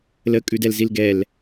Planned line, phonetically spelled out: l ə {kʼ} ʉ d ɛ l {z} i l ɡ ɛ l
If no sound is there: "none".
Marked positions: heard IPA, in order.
kʼ, z

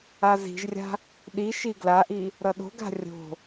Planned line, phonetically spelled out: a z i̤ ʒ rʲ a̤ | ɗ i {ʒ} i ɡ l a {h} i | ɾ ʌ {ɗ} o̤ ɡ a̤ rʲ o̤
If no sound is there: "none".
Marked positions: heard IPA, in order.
ʃ, ʔ, ɗ

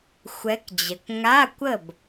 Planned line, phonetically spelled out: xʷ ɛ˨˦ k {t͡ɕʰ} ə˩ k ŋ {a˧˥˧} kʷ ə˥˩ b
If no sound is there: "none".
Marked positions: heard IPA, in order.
d͡ʑ, a˧˥˧

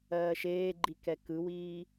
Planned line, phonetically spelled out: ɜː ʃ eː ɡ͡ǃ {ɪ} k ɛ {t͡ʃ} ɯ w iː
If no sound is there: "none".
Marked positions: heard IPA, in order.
i, k

